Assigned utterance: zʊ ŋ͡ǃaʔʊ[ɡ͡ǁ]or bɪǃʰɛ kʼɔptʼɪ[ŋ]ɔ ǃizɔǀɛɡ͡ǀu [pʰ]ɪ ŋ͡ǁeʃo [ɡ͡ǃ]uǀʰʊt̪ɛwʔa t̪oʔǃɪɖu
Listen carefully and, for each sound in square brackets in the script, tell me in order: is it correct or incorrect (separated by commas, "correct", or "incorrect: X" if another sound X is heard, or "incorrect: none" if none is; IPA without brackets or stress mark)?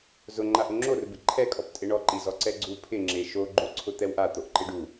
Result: incorrect: ŋ͡ǁ, incorrect: ɳ, correct, correct